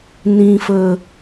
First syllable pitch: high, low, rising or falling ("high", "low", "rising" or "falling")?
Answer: low